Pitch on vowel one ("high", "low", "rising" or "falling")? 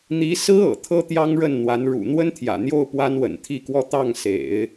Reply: rising